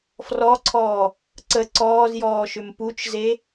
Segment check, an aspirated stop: present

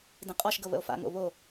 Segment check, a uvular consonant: present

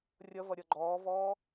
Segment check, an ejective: absent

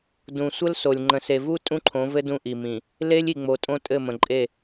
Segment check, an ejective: present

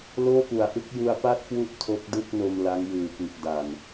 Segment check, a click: absent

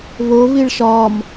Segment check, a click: absent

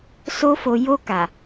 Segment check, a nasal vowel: absent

